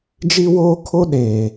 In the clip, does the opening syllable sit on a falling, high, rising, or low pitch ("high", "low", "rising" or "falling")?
high